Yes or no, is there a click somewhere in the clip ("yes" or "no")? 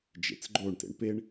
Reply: yes